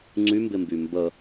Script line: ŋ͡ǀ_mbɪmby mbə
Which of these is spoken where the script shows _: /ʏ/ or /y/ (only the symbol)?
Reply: y